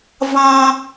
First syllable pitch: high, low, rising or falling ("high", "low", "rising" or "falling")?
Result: high